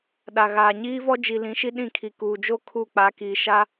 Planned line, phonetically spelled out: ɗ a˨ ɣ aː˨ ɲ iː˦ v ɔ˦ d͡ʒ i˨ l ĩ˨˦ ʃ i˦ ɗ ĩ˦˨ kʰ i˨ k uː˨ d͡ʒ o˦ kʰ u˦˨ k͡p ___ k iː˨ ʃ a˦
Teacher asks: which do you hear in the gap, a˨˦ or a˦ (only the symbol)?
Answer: a˨˦